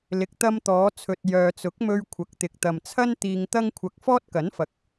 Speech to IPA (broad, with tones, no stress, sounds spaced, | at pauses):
l ɪ˨ k̚ t̪ ɐ˧ m t̪ ɔː˨˧ t͡sʰ ɵ˨ t̚ j œː˨ t͡s ʊ˨˥ k̚ m ɵ˧ ɥ kʷʰ ɐ˨ k̚ t̪ ɪ˨ k̚ t̪ ɐ˨ m t͡sʰ ɐ˥ n t̪ iː˧ ŋ t̪ ɐ˥ ŋ kʷʰ ɐ˧ k̚ f ɔː˥ t̚ k ɐ˨˥ n f ɐ˨˥ k̚